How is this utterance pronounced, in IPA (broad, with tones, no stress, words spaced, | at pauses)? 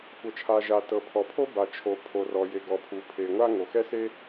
kʷɤ˩t͡ʃʰa˩ʒa˩ tɤ˩pʰɔ˩pʰo˥ ba˩t͡ʃʰo˩pʰo˩ rɔ˩je˩ɡɔ˩pʰu˩ pʰe˩ŋʷa˥ ŋo˩xɛ˥se˥